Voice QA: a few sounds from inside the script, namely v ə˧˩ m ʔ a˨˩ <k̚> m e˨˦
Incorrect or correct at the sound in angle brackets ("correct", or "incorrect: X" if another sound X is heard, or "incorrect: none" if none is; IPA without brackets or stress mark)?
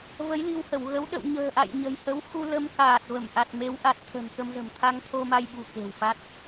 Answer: incorrect: t̚